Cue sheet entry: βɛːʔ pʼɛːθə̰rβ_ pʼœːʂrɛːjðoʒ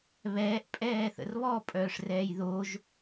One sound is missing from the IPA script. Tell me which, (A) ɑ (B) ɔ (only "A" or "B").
B